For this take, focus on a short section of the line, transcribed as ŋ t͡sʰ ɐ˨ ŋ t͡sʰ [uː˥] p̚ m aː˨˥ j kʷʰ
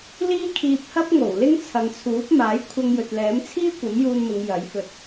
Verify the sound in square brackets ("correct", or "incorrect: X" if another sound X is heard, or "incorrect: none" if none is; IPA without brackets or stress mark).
incorrect: uː˨˥